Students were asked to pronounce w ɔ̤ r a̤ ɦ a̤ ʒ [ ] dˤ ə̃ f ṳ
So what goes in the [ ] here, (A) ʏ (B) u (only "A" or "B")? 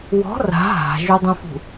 B